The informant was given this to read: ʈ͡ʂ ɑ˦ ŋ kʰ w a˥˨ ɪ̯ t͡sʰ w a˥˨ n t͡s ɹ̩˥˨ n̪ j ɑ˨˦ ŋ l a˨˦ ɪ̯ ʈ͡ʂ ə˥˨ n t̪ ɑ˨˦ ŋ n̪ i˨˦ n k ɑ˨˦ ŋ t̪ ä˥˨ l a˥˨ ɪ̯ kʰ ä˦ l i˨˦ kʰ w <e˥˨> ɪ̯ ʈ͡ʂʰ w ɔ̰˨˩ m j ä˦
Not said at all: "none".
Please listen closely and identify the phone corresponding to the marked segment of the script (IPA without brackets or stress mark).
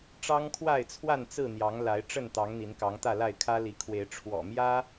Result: e˨˦